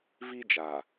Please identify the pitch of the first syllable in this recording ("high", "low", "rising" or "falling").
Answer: high